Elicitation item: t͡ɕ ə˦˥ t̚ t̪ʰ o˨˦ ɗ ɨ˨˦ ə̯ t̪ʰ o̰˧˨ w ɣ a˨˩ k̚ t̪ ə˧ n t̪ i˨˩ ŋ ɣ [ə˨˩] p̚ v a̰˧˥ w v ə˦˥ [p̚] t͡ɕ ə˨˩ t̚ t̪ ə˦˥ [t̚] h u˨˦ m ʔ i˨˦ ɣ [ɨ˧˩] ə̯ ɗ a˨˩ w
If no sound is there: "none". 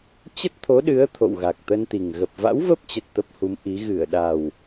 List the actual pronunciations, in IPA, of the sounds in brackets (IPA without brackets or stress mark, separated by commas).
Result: ə˨˩, p̚, p̚, ɨ˧˩